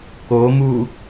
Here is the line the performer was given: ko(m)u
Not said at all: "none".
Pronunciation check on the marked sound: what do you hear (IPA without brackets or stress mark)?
m